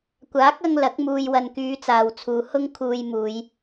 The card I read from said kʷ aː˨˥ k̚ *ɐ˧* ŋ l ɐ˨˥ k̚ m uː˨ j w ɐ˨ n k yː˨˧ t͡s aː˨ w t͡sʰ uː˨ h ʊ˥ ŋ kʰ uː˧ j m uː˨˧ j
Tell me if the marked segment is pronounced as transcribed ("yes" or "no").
yes